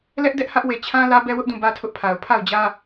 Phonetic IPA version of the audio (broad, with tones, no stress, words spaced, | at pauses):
lɛ˦ʔdɛ˦ʔ hä˦ʔwe˨ t͡ɕʰã˦ lä˦bɛ˦wʊ˦ʔdũ˦˨ bä˦tʰʊ˦ʔpʰa˨ʊ̯ pʰa˦˨ʊ̯d͡ʑä˦